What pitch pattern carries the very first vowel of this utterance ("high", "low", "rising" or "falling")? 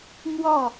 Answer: falling